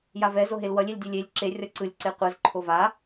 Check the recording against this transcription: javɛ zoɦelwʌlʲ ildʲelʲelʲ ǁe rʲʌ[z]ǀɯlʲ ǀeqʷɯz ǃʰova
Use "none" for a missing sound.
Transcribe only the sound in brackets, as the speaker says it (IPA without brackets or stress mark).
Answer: none